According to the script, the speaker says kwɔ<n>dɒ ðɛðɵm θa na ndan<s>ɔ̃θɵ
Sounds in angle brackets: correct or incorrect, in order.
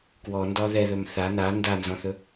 correct, incorrect: z

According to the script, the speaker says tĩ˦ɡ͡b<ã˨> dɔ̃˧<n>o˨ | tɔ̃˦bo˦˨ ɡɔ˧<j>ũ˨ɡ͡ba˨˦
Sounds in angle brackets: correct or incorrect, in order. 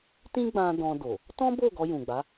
incorrect: ã˧, incorrect: d, correct

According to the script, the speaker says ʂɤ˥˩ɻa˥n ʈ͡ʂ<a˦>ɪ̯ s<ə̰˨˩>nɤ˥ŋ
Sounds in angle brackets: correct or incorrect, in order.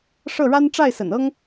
incorrect: a˥˩, correct

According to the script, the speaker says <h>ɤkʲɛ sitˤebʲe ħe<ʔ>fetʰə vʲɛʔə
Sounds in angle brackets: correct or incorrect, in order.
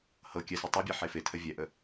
correct, incorrect: none

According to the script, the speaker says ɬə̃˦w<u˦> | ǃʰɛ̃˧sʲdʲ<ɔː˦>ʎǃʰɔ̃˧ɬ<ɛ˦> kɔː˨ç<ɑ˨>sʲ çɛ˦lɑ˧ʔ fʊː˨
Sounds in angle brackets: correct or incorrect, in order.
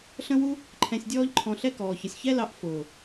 correct, correct, correct, incorrect: ʌ˨

